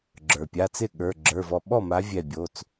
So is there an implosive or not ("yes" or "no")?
yes